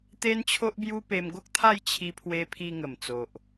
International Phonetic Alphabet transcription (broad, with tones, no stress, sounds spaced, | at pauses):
t̪ e˦ n t͡ɕʰ o˦ ʔ b j u˦ p e˧ m ɡ o˦ k̚ t̪ʰ a˥˧ j t͡ɕʰ i˧ pʰ w e˧ pʰ i˧ ŋ ə˨˩ m t͡s o˨ ʔ